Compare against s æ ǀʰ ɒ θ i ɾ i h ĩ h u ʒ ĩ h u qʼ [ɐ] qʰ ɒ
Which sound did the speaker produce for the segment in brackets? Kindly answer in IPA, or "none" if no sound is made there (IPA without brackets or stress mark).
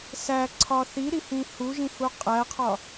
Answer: æ